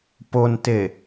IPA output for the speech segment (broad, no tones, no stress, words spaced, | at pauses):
ponte